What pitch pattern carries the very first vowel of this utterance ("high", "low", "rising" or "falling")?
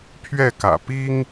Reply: falling